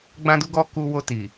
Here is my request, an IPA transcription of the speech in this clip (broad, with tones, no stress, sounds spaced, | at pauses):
ɡ͡b ã˦ d u˦ ɡ ɔ˦ k u˧ w o˧ t i˨